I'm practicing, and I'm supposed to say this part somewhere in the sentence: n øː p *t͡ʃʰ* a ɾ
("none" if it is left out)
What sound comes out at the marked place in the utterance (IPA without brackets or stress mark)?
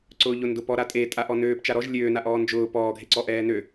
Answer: t͡ʃ